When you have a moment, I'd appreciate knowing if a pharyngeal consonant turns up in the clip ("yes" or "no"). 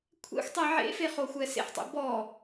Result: yes